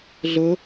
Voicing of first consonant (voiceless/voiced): voiced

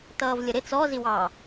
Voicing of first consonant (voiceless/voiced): voiceless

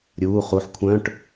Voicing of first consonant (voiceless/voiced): voiced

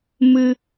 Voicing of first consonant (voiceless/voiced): voiced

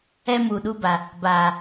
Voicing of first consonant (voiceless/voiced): voiced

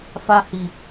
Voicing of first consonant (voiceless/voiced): voiceless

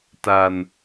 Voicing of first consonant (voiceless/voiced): voiceless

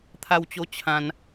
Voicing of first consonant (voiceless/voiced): voiceless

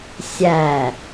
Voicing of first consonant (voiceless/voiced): voiceless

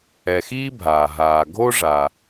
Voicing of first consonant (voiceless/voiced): voiceless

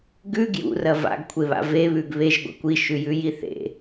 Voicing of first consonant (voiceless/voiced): voiced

